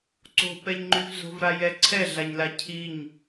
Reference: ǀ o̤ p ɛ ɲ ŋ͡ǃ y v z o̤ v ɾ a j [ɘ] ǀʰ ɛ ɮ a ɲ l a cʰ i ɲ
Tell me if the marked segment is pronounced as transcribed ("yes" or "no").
no